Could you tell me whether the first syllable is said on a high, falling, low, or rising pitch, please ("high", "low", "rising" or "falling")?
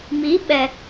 rising